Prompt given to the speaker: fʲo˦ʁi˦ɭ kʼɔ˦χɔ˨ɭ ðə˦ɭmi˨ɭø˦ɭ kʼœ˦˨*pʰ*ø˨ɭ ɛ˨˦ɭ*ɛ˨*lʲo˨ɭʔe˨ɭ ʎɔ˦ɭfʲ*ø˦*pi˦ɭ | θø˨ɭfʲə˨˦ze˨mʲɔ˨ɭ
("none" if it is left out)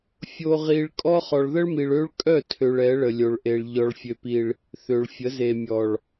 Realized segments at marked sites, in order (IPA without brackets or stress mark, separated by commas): tʰ, ə˨, ø˦